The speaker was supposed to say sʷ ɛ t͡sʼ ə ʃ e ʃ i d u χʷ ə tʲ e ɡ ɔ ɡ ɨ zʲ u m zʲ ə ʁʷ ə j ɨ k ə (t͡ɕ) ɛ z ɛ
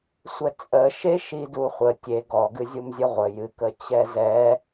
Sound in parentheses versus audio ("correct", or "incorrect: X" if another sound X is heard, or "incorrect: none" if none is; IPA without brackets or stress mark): correct